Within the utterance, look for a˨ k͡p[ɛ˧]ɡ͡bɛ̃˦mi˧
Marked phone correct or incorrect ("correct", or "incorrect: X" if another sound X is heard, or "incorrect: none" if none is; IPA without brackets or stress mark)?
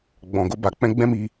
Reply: incorrect: ɛ̃˧